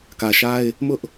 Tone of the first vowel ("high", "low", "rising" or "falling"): low